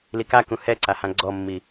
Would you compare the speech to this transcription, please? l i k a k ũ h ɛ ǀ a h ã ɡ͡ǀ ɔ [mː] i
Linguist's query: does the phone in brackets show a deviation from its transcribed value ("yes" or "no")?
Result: no